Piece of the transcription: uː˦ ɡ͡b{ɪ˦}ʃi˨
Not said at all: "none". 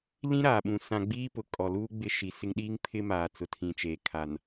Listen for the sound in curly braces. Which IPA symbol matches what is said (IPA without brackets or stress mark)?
ɪ˦